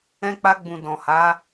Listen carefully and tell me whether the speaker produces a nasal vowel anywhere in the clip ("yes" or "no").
yes